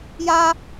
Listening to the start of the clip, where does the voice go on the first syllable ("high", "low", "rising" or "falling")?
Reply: high